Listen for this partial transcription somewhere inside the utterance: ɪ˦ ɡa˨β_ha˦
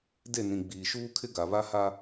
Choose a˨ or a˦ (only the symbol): a˦